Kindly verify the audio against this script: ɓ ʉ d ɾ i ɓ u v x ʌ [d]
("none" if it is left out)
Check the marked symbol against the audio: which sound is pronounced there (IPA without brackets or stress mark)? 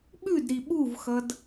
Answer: d